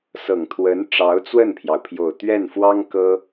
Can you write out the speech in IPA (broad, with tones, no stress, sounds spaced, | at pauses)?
s ɤ˨˩ ŋ t̪ʰ w ə˧˥ n ʈ͡ʂ ɑ˧˥ ʊ̯ t͡s w ə˥˩ n pʰ j ɑ˩ ʊ̯ pʰ j o˨˩ ʊ̯ t̪ ɥ ɛ˥˩ n f w ɑ˥ ŋ k ɤ˥